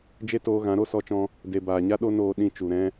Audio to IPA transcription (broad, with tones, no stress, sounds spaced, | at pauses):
d͡ʒ e˦ t oː˧ ɣ ã˨˦ ɾ o˧ s ɔ˧ t͡ʃ ɔ̃˧ | d e˨ b aː˨ ɲ a˦ ɗ o˦ n oː˧ ɗ ĩ˧ t͡ʃ u˨ ɾ ɛ̃˦